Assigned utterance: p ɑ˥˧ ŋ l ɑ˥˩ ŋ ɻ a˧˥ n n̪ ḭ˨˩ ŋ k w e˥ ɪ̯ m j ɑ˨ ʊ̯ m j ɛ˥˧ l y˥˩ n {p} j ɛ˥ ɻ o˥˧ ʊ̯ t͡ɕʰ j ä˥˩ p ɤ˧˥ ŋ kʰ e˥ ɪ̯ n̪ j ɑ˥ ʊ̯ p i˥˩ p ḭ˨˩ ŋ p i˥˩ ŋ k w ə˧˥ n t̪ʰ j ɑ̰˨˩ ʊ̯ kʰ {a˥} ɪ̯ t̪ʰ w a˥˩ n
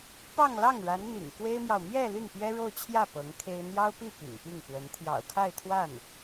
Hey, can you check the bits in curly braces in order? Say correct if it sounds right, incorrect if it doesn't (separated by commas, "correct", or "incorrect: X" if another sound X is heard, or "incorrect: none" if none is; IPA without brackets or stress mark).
correct, incorrect: a˥˧